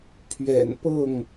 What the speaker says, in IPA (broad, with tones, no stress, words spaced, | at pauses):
pʰɥɛ̰˨˩npɤ˥˨ŋ